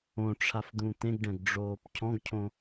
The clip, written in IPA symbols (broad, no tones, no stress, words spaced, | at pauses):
õʈ͡ʂʰafd̪ũ t̪ẽɡɖɛ̃ɡɖ͡ʐoːp cʰɔ̃ɡcʰõ